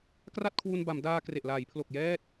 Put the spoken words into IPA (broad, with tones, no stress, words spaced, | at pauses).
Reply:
kra˥˩t̚kʰwu˧nba˩˦mdaː˧ kre˨˩ʔlaː˩˦jpʰlo˨˩k̚ jɛː˥˩t̚